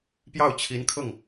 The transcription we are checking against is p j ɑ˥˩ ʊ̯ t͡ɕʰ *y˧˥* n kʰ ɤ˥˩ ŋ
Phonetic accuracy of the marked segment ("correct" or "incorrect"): incorrect